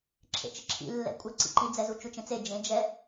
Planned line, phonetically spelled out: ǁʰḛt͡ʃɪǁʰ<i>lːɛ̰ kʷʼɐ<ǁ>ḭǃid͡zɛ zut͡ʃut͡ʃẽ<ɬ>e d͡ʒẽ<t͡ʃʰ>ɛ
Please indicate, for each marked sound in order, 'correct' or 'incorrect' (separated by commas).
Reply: incorrect, incorrect, incorrect, incorrect